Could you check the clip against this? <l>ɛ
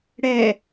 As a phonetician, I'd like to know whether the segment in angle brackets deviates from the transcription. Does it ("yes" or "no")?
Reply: yes